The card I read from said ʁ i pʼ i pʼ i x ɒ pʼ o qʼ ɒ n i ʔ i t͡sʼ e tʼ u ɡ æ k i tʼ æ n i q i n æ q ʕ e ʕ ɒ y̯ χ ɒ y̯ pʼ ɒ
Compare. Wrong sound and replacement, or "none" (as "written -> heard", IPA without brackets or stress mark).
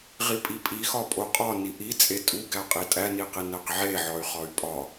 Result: k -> qʼ